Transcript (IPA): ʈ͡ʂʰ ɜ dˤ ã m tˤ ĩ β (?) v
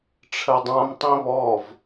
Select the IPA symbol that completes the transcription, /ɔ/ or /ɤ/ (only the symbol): ɔ